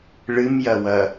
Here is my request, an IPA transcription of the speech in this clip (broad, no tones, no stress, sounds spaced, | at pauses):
ɭ ɨ m j ɐ w ɐ